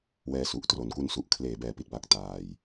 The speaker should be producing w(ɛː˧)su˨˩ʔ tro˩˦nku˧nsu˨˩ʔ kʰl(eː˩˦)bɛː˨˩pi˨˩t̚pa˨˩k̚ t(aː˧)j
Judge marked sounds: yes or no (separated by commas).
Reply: yes, yes, yes